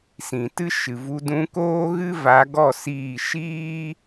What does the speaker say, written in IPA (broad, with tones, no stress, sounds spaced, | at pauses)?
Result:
s ĩ˨ t ɨ˦ ʃ ɨ˨ v u˧ d ũ˧ k oː˦ ɣ ɨ˦ v a˨˦ ɡ ɔ˦˨ s iː˦˨ ʃ iː˦